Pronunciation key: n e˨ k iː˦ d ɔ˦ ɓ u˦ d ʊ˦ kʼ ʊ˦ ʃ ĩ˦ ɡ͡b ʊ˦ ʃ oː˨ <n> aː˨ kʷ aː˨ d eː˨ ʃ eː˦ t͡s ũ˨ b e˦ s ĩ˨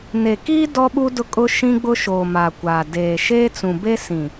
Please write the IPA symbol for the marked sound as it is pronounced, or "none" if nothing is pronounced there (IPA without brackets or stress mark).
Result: m